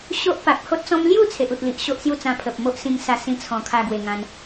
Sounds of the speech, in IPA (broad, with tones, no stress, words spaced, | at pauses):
ɕo˦ʔ pa˨k̚ho˦t̚t͡sɔ̃˦m lju˥˧ t͡sʰe˨ʔu˨t̚li˨ʔ ɕo˦ʔsju˥˧t͡sã˧ pʰə˨p̚mo˦ʔ sĩ˧ŋsa˧ sĩ˧t͡sʰɔ̃˨˩ kʰa˧ɡwe˨˩ŋã˧n